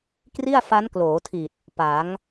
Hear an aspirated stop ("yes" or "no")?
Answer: yes